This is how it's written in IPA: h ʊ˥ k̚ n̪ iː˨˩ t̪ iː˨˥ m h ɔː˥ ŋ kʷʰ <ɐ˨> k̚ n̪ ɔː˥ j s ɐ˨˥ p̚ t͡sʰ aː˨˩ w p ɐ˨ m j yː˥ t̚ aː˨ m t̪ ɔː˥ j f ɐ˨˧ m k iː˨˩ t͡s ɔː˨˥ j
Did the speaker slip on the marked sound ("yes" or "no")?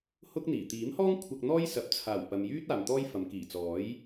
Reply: yes